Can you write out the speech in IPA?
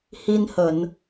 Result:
hi˧nhə˧˩˨n

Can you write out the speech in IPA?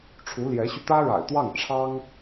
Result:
ʈ͡ʂʰu˧˥ljɛ˧˥ɕy˧ t̪ä˥ɻa̰˨˩ɪ̯t̪wɑ˥˩ŋ ʈ͡ʂʰɑ˥ŋ

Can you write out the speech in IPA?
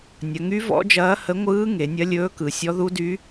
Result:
nʲɐ˩˧ŋy˧˥ vɔ̰˧˥d͡ʒɐː˧˥hə˧˥ ŋʷɯː˧˥ ŋe˩˧nʲɐ˧˥ lʲɵː˧˥kɯ˩˧sʲɔ˧˥ ðu˧˥dy˧˥

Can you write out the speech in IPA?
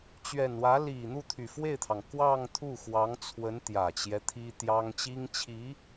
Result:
t͡ɕɥɛ˨˩nwä˧˥li˨˩ n̪u˥˩t̪ʰy˨˩fwe˥˩ɪ̯t̪ʰɑ˩ŋ kwɑ˥˧ŋt̪ʰu˥˩xwɑ˧˥ŋ t͡sʰwə˧˥nt̪jä˨˩t͡ɕjɛ˦ t̪ʰi˥t̪jɑ˥ŋ t͡ɕi˥ŋt͡ɕʰi˧˥

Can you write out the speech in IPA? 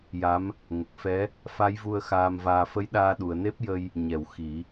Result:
ja˧˥m | ŋə˨˩k̚fɛ˧˥ | fa˧˥jvu˧ə̯ xaː˧mvaː˧ fə˧˥jɗaː˧ ɗu˨˩˨ə̯ne˦˥p̚jə˧j | ɲɛ˨˩˨w xi˨˩˦

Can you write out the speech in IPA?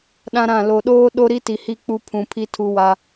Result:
ɗã˦ɾã˦˨ lo˨ɗoː˦ ɗo˦ɾi˦ti˨hi˦˨ k͡pu˦pʰũ˨pʰi˦ tʰu˦wa˦

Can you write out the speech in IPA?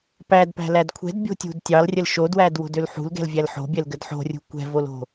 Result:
pædpæ̤læd kʷʰɛ̤dbʲo̤tʲṳd tʲɑlrʲəl ʃodwædwo̤døl ħṳlɡɛ̤lvʲæl ħo̤bʲɛlɡəd ħo̤rʲṳ kʷɛ̤volo̤

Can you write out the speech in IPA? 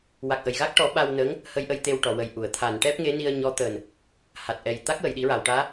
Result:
wa˨˩k̚ʔə˨˩˨jɣa˦˥k̚ ʈɔ˨˩˦ ɓa˧wnə˧˥ŋ | hə˧jʔə˧j t̪e˧wʈɔ˨˩˨wə˨˩jʔu˨˩˨ə̯ t̪ʰa˨˩˨nʈɛ˦˥p̚ŋe˧˥ ni˧ə̯ɲɔ˧˥t̪əː˨˩n | ha˨˩t̚ʔɛ˨˩j t̪a˦˥k̚wə˨˩˨jɗi˨˩˦ɹa˨˩˨w ʈaː˧˥

